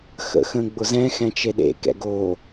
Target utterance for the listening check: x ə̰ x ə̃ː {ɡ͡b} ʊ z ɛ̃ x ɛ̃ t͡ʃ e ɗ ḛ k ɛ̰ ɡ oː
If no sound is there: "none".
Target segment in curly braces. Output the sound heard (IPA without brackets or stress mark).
ɡ͡b